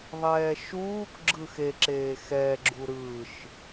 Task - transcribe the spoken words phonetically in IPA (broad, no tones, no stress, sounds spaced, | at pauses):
ðˤ ɛː ʃ uː k ɡ͡ǁ ɯ x e ǁ eː x ɛ ɡ͡ǁ u ɾ ɯ ʃ